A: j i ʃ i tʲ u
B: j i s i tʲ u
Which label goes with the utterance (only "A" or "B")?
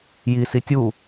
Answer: B